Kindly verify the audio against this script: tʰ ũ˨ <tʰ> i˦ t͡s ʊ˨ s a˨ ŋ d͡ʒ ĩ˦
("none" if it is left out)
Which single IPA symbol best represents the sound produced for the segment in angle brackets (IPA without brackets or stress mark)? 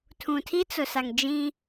tʰ